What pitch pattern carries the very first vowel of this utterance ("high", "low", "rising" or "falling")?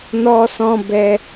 high